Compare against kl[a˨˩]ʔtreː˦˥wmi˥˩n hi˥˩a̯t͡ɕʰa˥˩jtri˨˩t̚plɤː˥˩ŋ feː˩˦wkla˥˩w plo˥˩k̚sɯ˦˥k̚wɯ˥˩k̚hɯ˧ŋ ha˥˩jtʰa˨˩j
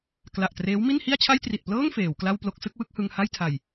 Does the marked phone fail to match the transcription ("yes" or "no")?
no